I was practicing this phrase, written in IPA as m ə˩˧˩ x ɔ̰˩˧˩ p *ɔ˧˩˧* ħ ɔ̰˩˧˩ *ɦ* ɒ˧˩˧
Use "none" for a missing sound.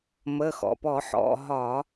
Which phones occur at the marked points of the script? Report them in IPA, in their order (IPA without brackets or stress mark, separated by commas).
ɔ˧˩˧, ɦ